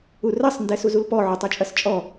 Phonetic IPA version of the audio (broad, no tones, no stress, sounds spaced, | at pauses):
u r ɐ sˤ n d ɛ s u z u l p ɔ ʕ u tˤ ɔ t͡ʃʼ ɐ s t͡ʃʼ ɔ